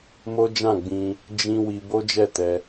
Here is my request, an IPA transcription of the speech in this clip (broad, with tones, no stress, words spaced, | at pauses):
mo˦ d͡ʒã˦˨ɡ͡bĩ˧ | d͡ʒĩ˧ wi˧ bo˦d͡ʒɛ˦˨tɛ˧